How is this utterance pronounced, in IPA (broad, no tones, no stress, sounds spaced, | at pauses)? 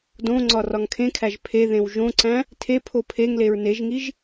d õ ŋ͡ǀ ɒ r ɒ ŋ kʰ ẽ kʰ æ ʒ pʰ e ð ẽ w ʒ õ ǀ æ̃ | tʰ e pʰ o pʰ e ŋ l e ɹ n e ʒ ŋ i ʒ